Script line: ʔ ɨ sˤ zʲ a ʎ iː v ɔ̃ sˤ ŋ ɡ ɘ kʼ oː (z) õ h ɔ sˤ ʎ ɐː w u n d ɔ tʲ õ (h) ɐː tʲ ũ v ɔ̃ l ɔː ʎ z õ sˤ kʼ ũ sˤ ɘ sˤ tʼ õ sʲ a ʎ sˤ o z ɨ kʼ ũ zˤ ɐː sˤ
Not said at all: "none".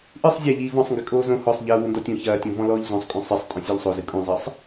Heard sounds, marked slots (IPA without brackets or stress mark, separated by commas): z, ç